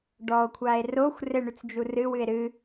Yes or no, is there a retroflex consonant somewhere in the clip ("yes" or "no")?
yes